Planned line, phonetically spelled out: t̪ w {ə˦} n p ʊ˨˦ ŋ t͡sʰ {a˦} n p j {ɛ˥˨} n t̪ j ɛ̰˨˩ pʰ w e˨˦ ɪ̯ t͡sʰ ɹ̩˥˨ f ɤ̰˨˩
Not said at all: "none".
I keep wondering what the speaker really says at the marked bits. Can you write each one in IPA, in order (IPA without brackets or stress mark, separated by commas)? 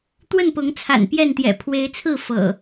ə˥˨, a̰˨˩, ɛ˥˨